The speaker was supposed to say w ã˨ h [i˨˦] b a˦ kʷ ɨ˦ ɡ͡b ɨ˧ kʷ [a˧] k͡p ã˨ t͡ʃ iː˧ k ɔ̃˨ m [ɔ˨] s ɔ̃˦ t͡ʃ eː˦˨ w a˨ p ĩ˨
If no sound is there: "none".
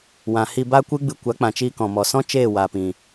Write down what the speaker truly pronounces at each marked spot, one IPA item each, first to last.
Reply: i˧, a˨˦, ɔ˨

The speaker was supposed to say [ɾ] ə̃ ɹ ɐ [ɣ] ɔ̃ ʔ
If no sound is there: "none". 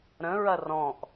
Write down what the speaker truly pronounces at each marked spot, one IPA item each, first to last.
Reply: ɾ, r

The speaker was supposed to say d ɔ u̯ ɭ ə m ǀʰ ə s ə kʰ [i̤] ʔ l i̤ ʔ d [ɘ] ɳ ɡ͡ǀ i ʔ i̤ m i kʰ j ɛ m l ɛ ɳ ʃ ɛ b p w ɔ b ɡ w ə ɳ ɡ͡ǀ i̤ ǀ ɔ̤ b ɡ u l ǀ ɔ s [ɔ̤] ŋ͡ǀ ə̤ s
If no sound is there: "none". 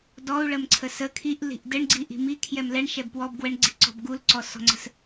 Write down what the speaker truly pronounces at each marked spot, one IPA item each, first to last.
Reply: i, ɘ, ɔ̤

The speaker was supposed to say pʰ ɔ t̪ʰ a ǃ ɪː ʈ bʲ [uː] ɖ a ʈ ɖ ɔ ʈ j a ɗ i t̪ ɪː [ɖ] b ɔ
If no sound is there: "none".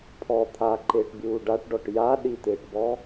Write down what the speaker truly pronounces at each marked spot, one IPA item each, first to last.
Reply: uː, ʈ

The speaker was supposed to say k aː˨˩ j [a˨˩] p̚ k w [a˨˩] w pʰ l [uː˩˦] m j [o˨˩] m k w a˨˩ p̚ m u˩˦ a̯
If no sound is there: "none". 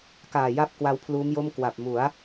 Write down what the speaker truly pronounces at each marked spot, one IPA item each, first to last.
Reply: a˥˩, a˦˥, uː˦˥, o˥˩

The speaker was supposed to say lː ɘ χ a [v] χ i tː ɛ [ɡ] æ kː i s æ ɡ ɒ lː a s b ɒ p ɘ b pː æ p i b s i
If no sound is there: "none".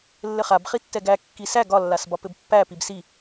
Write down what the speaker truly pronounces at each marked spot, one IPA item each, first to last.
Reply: b, ɡ

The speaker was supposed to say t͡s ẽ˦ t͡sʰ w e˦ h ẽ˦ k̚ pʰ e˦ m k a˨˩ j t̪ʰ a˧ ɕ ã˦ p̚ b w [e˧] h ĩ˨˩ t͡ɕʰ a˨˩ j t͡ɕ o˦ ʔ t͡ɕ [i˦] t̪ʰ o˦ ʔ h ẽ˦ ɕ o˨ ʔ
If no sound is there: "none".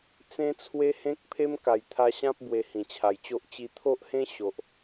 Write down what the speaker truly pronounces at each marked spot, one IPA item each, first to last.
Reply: e˧, i˧

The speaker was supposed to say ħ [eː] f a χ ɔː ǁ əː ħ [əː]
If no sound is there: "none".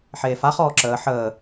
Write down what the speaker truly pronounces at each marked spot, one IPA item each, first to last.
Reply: eː, əː

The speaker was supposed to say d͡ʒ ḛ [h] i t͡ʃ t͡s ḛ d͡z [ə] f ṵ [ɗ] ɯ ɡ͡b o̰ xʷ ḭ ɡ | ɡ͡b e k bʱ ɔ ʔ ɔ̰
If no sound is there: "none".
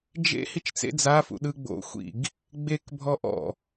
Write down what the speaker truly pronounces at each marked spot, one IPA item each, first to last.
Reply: h, a, ɗ

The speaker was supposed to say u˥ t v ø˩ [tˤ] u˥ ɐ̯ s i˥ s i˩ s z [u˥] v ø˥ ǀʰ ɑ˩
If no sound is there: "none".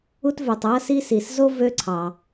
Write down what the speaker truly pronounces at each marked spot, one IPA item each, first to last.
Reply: tˤ, o˥

